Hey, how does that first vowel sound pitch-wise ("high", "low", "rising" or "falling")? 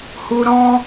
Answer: low